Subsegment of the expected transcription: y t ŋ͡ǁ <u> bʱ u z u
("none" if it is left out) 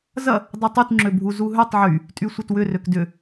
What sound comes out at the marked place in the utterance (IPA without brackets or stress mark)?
ø